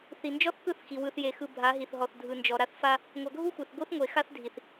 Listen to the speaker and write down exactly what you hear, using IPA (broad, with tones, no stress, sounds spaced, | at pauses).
θ i˨ n d͡ʒ ɔ˦ θ k ɯ˦˨ θ x i˨ w ɯ˨ θ j e˨ x ɯ˨ bʱ a˨˦ ɦ i˨ θ ɦ ɔ˨ θ dʱ ɯ˨ n d͡ʒ ɔ˨ ɾ a˦ θ f a˦ | ŋʷ a˨ ɡʱ u˦ xʷ e˨ θ ɡʷ ɯ˦ θ ŋʷ e˨ x a˦ θ dʱ i˨ θ